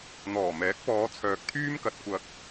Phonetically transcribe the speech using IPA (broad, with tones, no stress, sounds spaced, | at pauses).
n̪ ɔː˨˩ m ɛː˨˥ k̚ p ɔː˨˧ t͡sʰ œː˨ k̚ t̪ʰ yː˥ m k ɐ˧ t̚ kʷ ɐ˧ k̚